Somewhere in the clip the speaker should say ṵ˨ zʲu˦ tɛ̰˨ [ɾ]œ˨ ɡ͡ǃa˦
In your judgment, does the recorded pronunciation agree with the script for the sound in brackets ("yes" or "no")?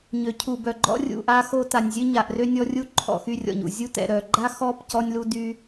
yes